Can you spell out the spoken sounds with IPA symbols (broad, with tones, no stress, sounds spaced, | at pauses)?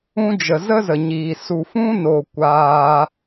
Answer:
ũ˧ d͡ʒ ə˨ z ə˦ z ə˨ ɲ iː˨ s u˨ f ũ˧ n o˨ kʷ aː˧